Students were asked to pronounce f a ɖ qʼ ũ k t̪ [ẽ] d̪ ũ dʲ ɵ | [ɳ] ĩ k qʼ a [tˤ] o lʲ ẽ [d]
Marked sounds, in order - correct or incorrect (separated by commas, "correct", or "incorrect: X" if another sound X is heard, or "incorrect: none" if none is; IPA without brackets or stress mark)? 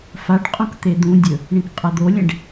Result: incorrect: e, correct, incorrect: d̪, incorrect: ɖ